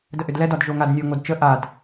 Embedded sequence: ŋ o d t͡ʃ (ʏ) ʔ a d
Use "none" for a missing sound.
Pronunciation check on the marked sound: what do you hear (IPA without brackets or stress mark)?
ə